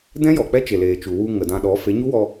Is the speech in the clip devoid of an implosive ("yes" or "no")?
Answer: no